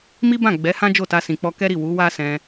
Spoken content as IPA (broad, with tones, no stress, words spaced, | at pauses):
mi˦bã˦˨ ɡ͡bɛ˨˦hã˦ d͡ʒo˦˨ta˧ sĩ˨k͡pɔ˧kɛ˦ɾi˦˨ wu˨˦ wa˦sɛ̃˧